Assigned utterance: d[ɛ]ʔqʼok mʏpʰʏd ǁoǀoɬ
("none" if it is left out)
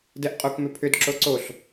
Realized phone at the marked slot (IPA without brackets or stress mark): ɛ